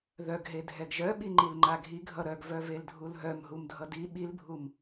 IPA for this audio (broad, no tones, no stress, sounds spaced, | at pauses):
ð œ ɡ ɦ e dʱ ɛ ɡ ʒ œ ɓ i ŋ͡ǃ i l ŋ͡ǃ a ɡʱ i ɡʱ ʌ ɾ œ ɡ v œ v e l dʱ u l ɦ œ m ɦ u m dʱ ʌ d i ɓ i l bʱ u m